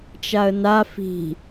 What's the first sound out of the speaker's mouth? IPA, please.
t͡ʃ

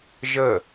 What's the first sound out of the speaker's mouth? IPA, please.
ʒ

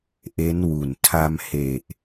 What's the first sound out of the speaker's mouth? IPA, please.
ʔ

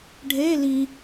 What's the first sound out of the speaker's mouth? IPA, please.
ɖʱ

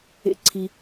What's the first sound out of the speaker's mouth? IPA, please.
ḛ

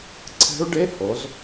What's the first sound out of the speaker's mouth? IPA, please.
ǀʰ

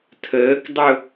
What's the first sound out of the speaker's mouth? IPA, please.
tʰ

